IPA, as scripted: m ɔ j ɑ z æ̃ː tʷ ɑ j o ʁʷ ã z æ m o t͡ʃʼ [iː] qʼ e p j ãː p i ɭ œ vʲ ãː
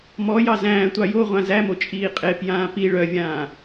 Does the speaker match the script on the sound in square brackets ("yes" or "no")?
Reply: yes